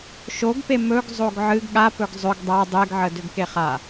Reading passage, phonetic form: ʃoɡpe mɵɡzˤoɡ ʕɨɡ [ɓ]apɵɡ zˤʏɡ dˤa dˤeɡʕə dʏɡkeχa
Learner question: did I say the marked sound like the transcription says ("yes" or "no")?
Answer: no